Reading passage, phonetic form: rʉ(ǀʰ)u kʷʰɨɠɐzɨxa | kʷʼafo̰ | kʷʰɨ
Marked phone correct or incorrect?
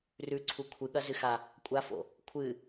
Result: correct